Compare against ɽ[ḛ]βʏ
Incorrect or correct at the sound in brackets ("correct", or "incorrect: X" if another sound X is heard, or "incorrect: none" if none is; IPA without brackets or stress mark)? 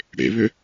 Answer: correct